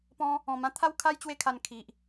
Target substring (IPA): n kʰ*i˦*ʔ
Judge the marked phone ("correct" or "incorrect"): incorrect